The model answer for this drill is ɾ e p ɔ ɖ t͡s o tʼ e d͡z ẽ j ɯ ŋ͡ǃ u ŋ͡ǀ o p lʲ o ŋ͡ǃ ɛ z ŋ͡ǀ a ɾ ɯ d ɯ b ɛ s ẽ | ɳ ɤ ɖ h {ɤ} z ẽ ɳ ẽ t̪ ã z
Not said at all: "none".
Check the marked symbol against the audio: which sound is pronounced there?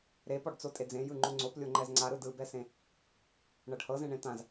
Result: ɤ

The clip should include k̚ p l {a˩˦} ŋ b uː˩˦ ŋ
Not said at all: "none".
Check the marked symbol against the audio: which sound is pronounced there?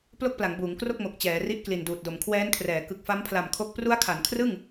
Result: a˩˦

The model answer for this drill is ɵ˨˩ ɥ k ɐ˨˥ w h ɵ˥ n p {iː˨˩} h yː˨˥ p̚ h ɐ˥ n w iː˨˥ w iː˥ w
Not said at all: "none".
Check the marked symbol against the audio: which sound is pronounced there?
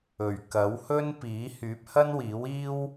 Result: iː˨˥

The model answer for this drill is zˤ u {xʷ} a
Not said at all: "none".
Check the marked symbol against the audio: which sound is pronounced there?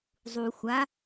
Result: xʷ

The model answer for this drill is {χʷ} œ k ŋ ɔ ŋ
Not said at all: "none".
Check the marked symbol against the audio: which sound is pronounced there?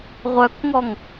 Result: ʁʷ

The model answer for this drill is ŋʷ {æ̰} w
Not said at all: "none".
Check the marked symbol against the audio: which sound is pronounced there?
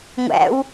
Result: æ̰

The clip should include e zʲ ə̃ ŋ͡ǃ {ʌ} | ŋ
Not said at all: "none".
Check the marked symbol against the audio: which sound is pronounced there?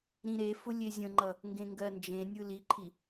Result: ʌ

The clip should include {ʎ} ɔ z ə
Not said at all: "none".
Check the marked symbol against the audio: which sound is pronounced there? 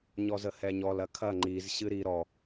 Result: ɲ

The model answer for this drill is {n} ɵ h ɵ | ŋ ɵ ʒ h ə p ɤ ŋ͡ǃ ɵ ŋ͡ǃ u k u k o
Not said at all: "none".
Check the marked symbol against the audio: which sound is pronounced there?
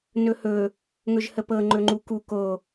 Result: n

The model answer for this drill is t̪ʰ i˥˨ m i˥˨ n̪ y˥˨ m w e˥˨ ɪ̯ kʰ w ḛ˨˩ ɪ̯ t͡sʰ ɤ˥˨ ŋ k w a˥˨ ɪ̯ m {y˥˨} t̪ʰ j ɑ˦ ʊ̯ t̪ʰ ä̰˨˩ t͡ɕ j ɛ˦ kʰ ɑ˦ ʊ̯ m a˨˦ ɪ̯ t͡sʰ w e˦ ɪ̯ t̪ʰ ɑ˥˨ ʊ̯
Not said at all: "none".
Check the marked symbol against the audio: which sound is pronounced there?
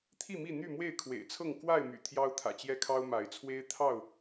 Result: y̰˨˩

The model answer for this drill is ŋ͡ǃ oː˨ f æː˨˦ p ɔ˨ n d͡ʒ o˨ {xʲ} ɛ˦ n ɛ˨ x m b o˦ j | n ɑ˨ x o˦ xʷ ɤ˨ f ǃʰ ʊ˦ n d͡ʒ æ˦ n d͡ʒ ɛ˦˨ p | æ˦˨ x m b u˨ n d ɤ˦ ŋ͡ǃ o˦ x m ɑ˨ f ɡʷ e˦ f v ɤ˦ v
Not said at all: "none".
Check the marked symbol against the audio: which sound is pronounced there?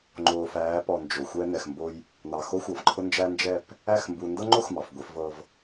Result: xʷ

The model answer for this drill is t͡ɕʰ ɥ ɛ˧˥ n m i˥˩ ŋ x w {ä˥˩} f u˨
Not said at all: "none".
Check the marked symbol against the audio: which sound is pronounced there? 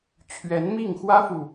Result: ä˥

